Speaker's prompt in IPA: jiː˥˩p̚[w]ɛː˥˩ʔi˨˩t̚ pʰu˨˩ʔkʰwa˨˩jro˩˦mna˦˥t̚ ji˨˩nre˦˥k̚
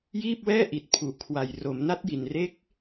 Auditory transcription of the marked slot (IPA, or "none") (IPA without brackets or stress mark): w